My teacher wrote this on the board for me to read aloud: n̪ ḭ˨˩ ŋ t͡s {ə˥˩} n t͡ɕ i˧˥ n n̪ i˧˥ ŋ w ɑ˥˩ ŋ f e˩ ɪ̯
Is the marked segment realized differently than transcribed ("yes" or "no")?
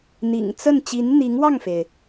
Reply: no